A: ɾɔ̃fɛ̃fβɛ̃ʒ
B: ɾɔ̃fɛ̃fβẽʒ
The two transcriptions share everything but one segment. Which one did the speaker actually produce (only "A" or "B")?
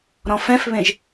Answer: B